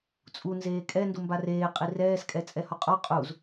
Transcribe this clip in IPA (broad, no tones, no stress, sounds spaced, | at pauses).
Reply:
t͡sʼ u n z eː kʼ ɛ n d u m b a r eː qʼ i r ɛː s kʼ ɛ t͡sʼ ɛ h ɔ qʼ ɔ qʼ u z